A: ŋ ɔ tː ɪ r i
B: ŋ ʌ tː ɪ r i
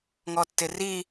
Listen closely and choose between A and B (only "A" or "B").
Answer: A